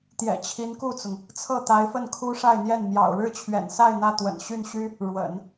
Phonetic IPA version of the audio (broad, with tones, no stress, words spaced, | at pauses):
t̪jɛ̰˨˩t͡ɕʰi˧˥nku˥˩t͡sʊ˩ŋ | t͡sʰɤ˥˩t̪a˧˥ɪ̯ fə˥˩nkʰu˥ʂa˥˧ɪ̯n̪jɛ˥˩n mjɑ̰˨˩ʊ̯ɻɻ̩˥˩t͡ɕʰɥɛ̰˨˩nsa˥˧ɪ̯ n̪ä˥˩t̪wə̰˨˩n ɕy˥˩nɕy˥ | ɻwə̰˨˩˦n